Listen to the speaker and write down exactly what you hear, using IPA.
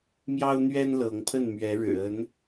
m j ɑ˦ ʊ̯ n̪ ɥ ɛ˦ n l ɤ˨˦ ŋ pʰ ə˥˨ n m ɥ ɛ˨˦ ɻ ɻ̩˨˩ ə˨˦ n

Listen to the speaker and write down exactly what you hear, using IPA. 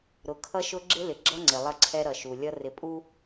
ɾ ʊ˨ kʰ ʌ˦ ʃ ʊ˦ ɡ͡ǁ ɪ˦ l ɪ˨ ɡ͡ǁ ʌ˦ ŋ͡ǀ ɪ˨ lˠ ʌ˦ ǀʰ ɛ˦ ɾ ʌ˨ ʃ u˨ lʲ ʌ˦ r ɪ˨ pʼ u˦

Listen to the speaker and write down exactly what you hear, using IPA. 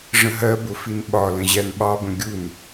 ʐ ə̃ ɦ ɜ b ʊ f i n ɓ ɒ l ə̃ ʑ æ n ɓ ɑ b ə̃ ɡʲ u n

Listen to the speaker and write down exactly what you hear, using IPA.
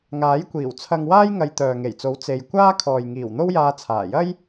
ŋ aː˨˥ j kʷ iː˨˩ w t͡sʰ ɐ˧ ŋ w aː˥ j ŋ ɐ˧ j t̪ œː˨ ŋ e˨˩ j t͡s o˨˥ w t͡s e˧ j kʷ aː˥ kʰ ɔː˨ j ŋ iː˨˩ w n̪ o˥ w j aː˧ t͡sʰ aː˨˩ j ɐ˥ j

